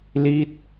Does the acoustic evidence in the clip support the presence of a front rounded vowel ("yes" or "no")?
no